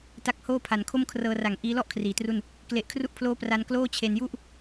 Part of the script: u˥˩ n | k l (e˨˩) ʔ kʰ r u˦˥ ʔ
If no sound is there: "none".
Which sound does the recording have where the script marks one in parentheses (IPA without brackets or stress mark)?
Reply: e˨˩